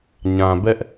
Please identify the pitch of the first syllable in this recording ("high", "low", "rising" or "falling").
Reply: low